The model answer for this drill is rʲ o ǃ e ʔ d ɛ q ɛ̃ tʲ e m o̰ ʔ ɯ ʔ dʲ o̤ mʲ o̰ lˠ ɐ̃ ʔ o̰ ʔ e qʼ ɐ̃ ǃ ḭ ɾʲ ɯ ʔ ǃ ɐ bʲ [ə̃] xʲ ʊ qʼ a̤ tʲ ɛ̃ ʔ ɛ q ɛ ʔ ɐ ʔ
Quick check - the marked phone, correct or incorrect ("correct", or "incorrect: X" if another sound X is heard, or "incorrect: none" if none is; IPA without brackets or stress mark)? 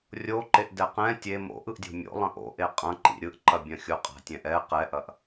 incorrect: ɐ̃